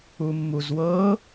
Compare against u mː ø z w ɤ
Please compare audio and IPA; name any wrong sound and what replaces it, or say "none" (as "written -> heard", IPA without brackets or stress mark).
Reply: ø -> u